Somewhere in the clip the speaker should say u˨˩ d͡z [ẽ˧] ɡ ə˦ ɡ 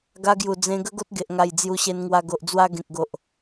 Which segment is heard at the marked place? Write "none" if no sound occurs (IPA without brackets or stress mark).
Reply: ẽ˧